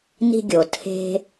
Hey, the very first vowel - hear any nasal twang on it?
no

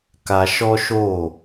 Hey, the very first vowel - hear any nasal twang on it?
no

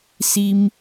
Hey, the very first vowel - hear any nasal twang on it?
no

